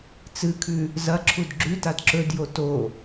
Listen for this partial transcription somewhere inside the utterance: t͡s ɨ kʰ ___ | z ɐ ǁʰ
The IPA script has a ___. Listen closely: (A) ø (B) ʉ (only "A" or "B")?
B